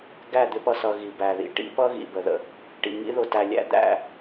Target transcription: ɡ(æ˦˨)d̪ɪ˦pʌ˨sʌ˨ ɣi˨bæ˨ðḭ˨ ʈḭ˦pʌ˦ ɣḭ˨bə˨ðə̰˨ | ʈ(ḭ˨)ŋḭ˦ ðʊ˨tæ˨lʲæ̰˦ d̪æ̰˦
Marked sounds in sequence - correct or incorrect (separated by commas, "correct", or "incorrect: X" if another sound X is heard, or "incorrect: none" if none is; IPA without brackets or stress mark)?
correct, correct